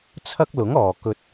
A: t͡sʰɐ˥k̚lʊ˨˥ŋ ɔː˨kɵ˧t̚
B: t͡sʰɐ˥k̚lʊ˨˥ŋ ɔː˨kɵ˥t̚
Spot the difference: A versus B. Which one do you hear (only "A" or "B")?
A